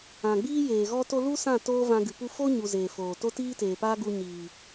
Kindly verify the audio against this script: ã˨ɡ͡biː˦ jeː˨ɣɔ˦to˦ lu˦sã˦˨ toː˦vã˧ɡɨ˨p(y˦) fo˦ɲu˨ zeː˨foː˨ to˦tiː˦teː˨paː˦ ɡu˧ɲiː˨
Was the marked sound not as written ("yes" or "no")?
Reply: yes